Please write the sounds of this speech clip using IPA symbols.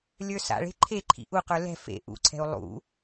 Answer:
lʲə˞sa̰ɭe̤ ǃʰeǃʰḭ ʔuqə˞ lɛ̤ fḛ ʔṵǀʰɛ̤u̯ lˠṵ

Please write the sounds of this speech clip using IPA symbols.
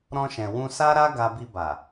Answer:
ɾɔ̃˧ʃɛ̃˨ wũ˧sa˦ɾa˦ ɡa˧bi˧ba˨

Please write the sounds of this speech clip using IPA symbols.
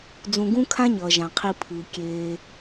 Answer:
d͡zũ˨ɡũ˦kʰã˦ɲʌː˩ ʒã˩qʰi˨ pʰɯː˩ kʲeː˩

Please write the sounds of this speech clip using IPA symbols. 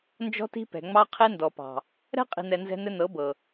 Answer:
nd͡ʒɔ̤˦ti̤˦pɛ̤˨ŋ͡mɑ˦ qʰe˦ndɔ˨pɑ̤˨ | ɾɛ̤˦ qʼi̤˨nɛ˨ nzɛ̤˦nɘ˦ nɤ˨˦bɤ˨

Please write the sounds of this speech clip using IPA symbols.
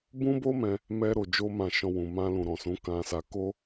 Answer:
bũ˦bo˦mɛ̃˧ | mɛ˧ɾo˨d͡ʒo˧ mã˦ʃɔ̃˦wũ˧ mã˧lũ˨ɾɔ̃˨sũ˨˦ kã˧sa˧ ko˦

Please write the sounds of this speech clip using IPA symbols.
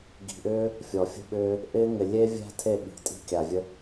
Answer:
ɡi̤˨ʔʏː˦ | fʲɔ˨fʲə̤˦ɓʏː˦ | ʔɪː˦ŋɪ˨ lʲe˦vʲæ̤˦ tʰe˦˨ɓi̤˨tʼi̤˦ kʲa˨vʲə˦

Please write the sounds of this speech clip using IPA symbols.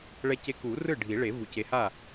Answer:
ɭɛ˦ce˦ ku˨˩˦ rɯ˥˩ɖʱi˨˩˦ɭe˨˩˦ vu˨˩ce˨˦ha˥˩

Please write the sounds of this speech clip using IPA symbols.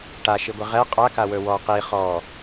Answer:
ʈaʃiɡʷi ʁɛ qʼakawɵ wɔ qi χɔ

